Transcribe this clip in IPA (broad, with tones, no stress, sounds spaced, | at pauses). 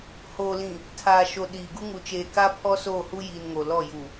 h oː˨ l ĩ˨ | tʰ aː˨ ʃ o˨ ɗ iː˨ ɡ u˦ ŋ u˨ t͡ʃ eː˨ k aː˦ pʰ ɔ˦ s oː˦˨ h u˦ j iː˨ n ŋ o˨ l ɔ˦˨ j u˨